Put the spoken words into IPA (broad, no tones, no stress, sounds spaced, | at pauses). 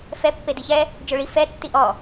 f ɛ pː e d i ç ɛ | d͡ʒ o ɭ i f ɛ tː i ʔ ɔ